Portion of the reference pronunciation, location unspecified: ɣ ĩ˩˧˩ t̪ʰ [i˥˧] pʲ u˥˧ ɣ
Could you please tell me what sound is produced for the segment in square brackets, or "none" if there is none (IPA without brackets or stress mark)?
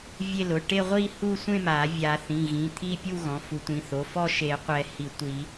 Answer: i˥˧